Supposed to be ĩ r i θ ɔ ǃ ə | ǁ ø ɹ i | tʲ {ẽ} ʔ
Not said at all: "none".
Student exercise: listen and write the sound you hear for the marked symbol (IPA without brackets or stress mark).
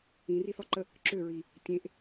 ẽ